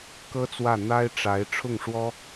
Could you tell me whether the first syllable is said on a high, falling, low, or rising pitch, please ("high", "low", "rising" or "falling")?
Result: high